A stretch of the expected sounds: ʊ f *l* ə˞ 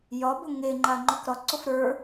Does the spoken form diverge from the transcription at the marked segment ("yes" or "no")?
yes